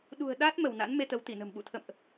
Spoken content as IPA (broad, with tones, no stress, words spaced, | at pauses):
ɗṳ˨˩ə̯ ɗa˦˥t̚ mə˧˩wna̰˧˥n me˧t̪ə˨˦wt̪i˧˩nə̤˨˩m ɓṵ˧˨ t̪ʰə̰˧˨mʔ